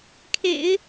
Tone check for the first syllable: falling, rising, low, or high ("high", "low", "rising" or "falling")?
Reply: low